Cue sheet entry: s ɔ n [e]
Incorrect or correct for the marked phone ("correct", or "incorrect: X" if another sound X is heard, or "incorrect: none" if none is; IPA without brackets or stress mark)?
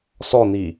incorrect: i